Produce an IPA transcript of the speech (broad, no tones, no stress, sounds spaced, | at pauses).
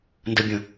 n d ə bʲ ə̃